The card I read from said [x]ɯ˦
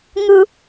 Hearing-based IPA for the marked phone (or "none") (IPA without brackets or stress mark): ŋ